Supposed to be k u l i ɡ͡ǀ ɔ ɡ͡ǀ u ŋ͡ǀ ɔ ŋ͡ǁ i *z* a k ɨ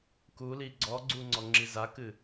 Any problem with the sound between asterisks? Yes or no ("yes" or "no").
no